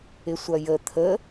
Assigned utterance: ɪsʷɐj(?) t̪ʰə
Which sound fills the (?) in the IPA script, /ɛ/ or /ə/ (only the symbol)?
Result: ə